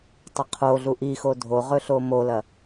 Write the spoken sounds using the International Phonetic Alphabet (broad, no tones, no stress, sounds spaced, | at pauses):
tˤ ɐ qʰ o ɮ u ʔ i x o dʱ o ʁ ɵ ɬ o m o l ɐ